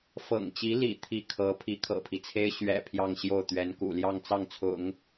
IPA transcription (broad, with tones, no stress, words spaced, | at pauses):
fɤ̰˨˩ŋt͡ɕi˧˥ lḭ˨˩ t̪ʰi˥˩kʰɤ˧˥ pʰi˧˥kʰɤ̰˨˩pʰi˦t͡sʰe˥ɪ̯ ɕɥɛ̰˨˩ pʰjɑ˥˧ŋɕjo˥˩ʊ̯t̪ɥɛ˧˥nkṵ˨˩ ljɑ˥˧ŋt͡sɑ˥˩ŋt͡sʰʊ̰˨˩˦ŋ